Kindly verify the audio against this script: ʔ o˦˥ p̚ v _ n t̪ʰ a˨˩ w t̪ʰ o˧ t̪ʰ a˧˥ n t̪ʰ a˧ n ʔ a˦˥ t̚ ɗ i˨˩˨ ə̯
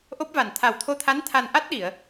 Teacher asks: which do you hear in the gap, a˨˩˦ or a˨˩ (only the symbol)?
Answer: a˨˩